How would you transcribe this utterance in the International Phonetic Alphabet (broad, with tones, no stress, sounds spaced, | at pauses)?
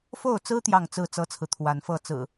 f o˥˨ ʊ̯ t͡s ɹ̩˦ t̪ j ɑ˥˨ ŋ t͡s ɹ̩˥˨ t͡s ɤ˦ t͡sʰ ɹ̩˨ t̪ʰ w a˨˦ n f ɤ˥˨ t͡s ɹ̩˨˩